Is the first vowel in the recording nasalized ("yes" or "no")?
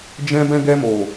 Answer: yes